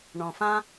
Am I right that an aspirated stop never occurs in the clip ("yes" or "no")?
yes